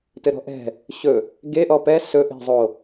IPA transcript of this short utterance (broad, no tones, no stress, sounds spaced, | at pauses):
t ɘ ɾ ɔ̤ ʔ ɛ̤ | ɕ ɵ | ɡ e ʔ ɔ p ɛ s ɵ ʔ e̤ zˤ o